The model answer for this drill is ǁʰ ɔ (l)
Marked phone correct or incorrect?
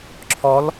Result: correct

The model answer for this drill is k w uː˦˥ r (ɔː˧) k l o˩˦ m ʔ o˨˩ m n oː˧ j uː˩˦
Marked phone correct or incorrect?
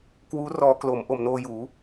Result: correct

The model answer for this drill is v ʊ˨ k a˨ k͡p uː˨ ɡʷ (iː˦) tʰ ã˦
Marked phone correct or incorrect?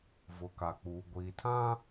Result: incorrect: iː˨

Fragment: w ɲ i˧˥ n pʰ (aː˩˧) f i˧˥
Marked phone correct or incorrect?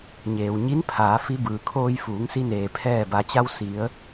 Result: correct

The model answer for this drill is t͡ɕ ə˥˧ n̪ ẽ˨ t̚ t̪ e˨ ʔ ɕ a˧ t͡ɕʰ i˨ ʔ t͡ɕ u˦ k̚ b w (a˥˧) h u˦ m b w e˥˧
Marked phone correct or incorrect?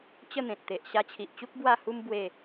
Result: correct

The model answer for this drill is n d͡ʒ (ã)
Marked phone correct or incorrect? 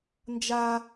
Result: incorrect: a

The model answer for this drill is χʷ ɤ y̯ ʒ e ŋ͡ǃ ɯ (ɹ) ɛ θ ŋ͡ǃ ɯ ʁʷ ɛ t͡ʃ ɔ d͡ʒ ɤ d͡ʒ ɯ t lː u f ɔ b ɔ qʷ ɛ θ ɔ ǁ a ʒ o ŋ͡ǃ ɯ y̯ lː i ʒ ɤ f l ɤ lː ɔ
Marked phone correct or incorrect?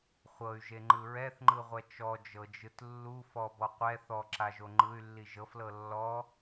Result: correct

